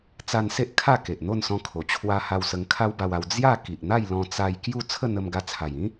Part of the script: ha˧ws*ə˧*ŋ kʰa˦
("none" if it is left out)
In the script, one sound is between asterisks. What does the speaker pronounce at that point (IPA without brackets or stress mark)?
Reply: ə˧